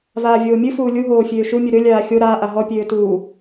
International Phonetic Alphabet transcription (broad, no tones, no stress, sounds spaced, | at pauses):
v aː vʲ oː mʲ ɨ f uː lʲ u ɦ oː fʲ øː ʃ u mʲ ɨ ɾ ø lʲ aː xʲ o ɾ aː ʔ a ɦ ɔ pʲ øː t uː